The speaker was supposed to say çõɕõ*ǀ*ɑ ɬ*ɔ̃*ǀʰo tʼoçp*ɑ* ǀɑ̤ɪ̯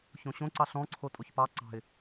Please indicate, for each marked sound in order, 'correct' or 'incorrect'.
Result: correct, correct, correct

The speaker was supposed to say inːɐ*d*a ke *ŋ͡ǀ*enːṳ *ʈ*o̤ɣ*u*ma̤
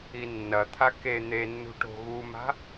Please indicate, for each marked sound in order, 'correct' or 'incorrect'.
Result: incorrect: t̪ʰ, incorrect: n̪, correct, correct

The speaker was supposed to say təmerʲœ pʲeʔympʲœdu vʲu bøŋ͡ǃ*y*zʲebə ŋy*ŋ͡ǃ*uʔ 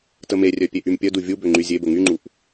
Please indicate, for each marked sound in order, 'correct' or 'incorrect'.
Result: correct, correct

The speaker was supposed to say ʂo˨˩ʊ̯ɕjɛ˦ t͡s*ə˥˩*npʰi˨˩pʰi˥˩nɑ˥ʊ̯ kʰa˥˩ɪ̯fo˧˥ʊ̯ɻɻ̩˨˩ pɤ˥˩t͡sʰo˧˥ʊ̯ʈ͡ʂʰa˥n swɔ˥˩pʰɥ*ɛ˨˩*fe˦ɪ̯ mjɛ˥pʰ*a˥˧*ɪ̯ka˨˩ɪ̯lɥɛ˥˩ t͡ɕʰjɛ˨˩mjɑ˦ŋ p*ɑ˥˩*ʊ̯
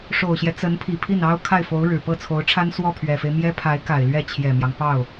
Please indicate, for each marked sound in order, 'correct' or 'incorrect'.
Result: incorrect: ə˧˥, correct, incorrect: a˧˥, correct

